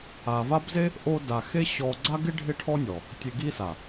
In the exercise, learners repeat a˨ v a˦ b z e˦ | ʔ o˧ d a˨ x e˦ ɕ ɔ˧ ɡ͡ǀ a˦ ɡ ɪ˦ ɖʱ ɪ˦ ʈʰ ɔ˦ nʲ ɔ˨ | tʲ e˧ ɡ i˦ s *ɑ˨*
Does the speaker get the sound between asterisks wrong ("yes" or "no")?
yes